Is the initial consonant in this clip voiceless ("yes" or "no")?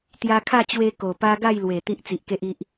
yes